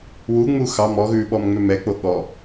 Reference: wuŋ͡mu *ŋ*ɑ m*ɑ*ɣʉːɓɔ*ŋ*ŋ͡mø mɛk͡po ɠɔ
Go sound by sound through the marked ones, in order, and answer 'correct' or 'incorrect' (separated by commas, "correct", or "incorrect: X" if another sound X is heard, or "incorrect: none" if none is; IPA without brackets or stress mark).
incorrect: x, incorrect: ɔ, incorrect: m